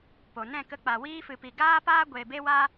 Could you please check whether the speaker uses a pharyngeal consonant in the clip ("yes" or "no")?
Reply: no